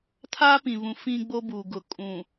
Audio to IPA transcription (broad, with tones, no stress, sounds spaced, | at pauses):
tʰ aː˦ p ĩ˨ β ũ˨ f ĩ˦ ɡ͡b o˦ b u˨ ɡ ʊ˨ kʼ ũ˨